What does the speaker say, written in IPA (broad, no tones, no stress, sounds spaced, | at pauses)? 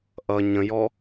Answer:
ʔ ʌ ɲ ə̃ j ɔ